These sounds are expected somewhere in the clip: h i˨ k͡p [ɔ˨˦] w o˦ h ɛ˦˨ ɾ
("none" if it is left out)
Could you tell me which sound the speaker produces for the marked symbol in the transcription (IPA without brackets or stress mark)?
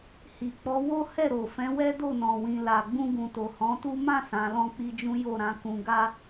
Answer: ɔ˨˦